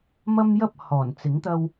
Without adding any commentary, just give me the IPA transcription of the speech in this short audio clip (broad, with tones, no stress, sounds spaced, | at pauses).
m ɐ˥ m j ɐ˥ p̚ h ɔː˨˩ n t͡s ɪ˨˥ ŋ t̪ ɐ˧ w